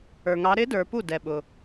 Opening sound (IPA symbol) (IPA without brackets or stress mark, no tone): ə˞